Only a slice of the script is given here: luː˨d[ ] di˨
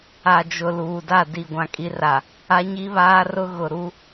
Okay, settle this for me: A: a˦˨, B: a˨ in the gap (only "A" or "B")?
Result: A